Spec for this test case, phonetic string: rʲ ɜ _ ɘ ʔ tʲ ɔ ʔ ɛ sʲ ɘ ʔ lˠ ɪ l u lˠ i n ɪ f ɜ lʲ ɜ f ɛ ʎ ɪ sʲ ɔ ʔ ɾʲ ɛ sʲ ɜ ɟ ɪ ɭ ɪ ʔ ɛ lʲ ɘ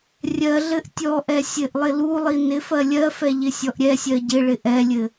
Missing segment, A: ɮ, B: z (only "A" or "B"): A